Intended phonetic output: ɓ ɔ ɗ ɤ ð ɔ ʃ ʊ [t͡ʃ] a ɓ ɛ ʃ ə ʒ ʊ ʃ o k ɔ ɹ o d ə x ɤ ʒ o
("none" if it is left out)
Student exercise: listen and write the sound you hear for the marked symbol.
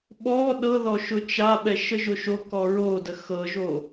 t͡ʃ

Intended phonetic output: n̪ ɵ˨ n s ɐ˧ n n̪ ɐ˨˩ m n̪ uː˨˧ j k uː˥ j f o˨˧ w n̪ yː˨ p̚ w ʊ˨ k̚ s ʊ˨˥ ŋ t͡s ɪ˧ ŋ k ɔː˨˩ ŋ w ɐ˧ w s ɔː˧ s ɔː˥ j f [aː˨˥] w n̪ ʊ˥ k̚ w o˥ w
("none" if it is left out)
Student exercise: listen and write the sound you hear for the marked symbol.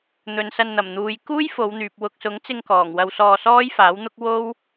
aː˨˥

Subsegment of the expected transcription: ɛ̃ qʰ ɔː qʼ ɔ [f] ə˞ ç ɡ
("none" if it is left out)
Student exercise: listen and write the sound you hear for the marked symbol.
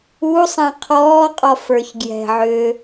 f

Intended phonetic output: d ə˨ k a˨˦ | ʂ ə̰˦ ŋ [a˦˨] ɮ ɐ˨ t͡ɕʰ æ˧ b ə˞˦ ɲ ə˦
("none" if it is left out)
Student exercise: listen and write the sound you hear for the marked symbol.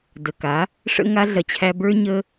a˦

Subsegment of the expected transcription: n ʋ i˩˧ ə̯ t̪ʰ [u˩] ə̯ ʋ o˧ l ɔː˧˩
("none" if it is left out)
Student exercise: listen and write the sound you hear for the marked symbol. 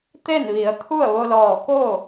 u˥˨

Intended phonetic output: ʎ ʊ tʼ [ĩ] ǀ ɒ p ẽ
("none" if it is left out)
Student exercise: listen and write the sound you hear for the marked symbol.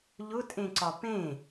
ẽ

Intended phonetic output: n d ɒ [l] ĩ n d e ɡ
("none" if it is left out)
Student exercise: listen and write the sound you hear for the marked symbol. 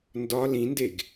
l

